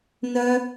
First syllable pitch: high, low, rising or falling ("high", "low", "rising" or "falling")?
high